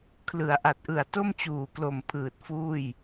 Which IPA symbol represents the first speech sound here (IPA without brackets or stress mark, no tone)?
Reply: kʰ